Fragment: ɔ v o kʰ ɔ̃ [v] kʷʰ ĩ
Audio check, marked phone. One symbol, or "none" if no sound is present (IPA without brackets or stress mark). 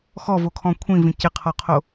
none